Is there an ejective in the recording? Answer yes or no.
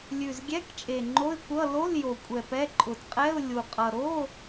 yes